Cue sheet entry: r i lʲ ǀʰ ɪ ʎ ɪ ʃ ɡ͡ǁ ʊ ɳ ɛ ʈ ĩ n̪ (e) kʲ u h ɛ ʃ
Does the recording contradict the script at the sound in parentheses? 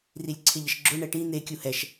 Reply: no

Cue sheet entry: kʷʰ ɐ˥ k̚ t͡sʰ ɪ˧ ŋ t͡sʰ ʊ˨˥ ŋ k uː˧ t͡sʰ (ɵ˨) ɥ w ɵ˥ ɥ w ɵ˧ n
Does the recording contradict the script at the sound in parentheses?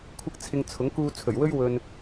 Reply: yes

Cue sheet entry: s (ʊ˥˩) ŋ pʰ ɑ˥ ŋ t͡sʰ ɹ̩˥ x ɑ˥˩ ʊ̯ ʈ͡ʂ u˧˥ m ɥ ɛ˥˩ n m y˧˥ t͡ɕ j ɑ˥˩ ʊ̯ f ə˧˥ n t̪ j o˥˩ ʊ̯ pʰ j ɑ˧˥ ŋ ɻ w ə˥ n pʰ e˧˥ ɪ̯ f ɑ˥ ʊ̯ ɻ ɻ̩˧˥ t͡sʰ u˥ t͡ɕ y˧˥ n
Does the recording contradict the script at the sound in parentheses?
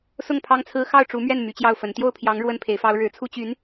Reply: no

